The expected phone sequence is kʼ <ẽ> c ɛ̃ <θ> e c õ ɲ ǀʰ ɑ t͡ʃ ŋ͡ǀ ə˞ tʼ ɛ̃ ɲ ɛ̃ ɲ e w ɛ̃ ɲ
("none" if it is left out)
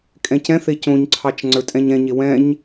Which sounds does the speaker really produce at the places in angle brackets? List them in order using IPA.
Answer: ɛ̃, θ

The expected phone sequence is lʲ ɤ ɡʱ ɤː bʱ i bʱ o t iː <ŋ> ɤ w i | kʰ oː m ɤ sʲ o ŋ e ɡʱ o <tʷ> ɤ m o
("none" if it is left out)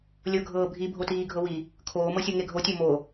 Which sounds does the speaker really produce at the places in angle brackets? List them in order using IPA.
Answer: ɡʱ, tʲ

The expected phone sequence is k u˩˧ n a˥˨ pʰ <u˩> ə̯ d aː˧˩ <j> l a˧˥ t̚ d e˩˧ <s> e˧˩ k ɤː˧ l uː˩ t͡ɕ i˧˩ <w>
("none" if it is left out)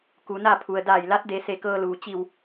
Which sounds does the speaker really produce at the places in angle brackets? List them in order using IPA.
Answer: u˩, j, s, w

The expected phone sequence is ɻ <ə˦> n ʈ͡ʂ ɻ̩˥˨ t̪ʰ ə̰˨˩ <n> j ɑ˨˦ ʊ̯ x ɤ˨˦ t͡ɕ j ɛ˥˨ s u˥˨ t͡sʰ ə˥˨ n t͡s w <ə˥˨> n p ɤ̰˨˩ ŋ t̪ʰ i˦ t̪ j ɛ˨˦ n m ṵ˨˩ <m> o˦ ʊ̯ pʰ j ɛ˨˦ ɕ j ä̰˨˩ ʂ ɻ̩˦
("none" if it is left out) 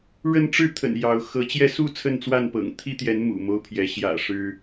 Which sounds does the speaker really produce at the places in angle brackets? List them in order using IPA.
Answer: ə˦, n, a˥˨, m

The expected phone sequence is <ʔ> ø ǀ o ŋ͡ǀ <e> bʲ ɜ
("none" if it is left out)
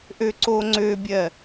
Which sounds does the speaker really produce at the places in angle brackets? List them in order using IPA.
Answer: ʔ, ø

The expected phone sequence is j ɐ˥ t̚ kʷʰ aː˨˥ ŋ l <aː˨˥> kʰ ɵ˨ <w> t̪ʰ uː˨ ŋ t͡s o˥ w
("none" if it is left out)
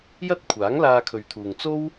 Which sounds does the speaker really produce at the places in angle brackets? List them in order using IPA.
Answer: aː˧, ɥ

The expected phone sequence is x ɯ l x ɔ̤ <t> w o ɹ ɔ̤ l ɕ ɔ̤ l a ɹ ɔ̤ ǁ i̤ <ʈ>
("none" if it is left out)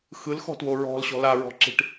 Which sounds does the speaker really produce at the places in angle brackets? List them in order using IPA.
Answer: t, ʈ

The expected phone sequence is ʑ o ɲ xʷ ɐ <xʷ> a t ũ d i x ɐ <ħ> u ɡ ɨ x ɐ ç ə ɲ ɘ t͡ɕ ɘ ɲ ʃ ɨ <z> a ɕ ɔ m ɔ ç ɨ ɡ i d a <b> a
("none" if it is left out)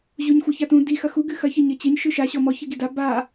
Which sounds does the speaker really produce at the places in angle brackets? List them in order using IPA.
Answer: ç, x, ʃ, b

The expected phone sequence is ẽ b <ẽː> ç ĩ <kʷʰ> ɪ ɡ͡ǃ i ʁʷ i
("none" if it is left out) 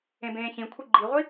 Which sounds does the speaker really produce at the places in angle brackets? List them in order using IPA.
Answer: ẽː, kʷʰ

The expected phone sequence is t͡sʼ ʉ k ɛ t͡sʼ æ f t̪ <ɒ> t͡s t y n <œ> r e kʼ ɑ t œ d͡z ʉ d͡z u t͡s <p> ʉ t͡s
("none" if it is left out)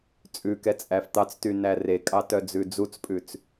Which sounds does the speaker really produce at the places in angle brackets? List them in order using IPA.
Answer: ɑ, æ, pʼ

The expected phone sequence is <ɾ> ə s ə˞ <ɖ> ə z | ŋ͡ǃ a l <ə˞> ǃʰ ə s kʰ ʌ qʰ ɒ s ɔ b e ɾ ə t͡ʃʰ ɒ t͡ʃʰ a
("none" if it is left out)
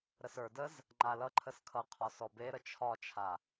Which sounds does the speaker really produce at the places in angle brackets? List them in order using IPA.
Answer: ɾ, d, ʌ

